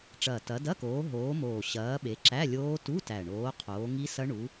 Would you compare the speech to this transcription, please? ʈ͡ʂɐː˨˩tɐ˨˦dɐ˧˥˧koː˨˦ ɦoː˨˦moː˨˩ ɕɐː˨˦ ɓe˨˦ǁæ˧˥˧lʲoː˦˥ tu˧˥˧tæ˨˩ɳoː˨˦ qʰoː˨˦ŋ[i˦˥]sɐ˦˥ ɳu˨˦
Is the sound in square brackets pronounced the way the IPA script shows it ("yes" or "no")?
yes